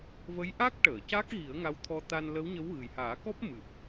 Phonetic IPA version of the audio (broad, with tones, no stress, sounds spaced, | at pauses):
v ə˧˥ j ʔ a˦˥ k̚ ʈ əː˨˩˨ c a˦˥ k̚ ɣ i˨˩˦ ə̯ ŋ a˧˥ w t̪ʰ ɔ˧ t̪ a˧ n l ə˧˥ w ɲ ə˧˥ w ɣ ɨ˨˩ j h aː˨˩˦ k ɔ˦˥ p̚ m ɨ˨˩ p̚